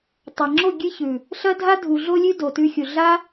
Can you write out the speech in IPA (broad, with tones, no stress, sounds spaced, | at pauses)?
tˤ a˨ ŋ͡ǁ o˦˨ ɡʲ ɨ˦ ç ʉ˨ | ɬ ɐ˦ dʱ a˦ dʱ u˨ ɮ o˧ lʲ ʉ˦ d o˨ t ʉ˧ xʲ u˨ ɮ a˦